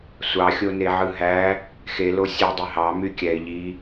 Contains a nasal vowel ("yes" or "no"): no